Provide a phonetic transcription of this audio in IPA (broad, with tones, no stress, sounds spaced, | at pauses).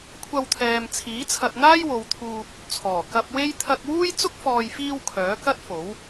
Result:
kʷʰ ɐ˧ w t̪ʰ ɛː˨ m t͡sʰ iː˨˥ t͡sʰ ɐ˧ t̚ n̪ aː˥ j w o˨˧ w t̪ʰ uː˧ p̚ | t͡sʰ ɔː˨˩ k ɐ˧ p̚ w e˥ j t̪ʰ ɐ˧ k̚ w uː˥ j t͡s ʊ˥ k̚ f ɔː˨ j f iː˧ w kʰ œː˨˥ k ɐ˥ t̚ f o˨˥ w